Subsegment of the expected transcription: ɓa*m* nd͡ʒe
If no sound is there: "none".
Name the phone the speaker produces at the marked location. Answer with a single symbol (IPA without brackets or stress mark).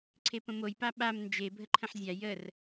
m